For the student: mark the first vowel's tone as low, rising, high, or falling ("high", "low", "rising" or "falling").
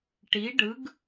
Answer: rising